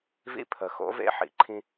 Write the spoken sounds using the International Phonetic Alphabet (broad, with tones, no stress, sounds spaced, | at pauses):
v ḭ˦ pʰ ə˨ x o̰˨˦ v ḛ˦ ħ ḭ˨ ǃʰ ĩ˦